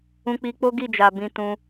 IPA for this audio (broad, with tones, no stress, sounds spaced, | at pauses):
ũ˧ k͡p i˧ k͡p o˦ ɡ i˦˨ d͡ʒ a˨ b ĩ˧ t ũ˧